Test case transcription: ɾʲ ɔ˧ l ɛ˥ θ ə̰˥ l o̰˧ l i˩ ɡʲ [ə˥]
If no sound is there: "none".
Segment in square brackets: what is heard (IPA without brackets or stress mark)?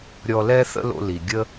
ə˥